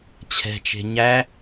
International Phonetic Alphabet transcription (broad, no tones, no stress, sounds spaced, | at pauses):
t͡ɕʰ ɛ̤ t͡ʃ e̤ ɲ æ